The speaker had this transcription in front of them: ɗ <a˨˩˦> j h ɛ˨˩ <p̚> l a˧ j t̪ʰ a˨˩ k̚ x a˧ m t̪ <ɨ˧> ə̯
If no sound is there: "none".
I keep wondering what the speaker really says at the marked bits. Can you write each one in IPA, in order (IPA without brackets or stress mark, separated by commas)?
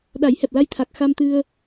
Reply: a˨˩˦, p̚, ɨ˧